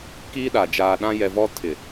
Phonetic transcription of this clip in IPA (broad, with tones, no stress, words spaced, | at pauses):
kiː˦ɗa˨ d͡ʒaː˨ɗã˦jɛ˨vɔ˦ tʰɪ˨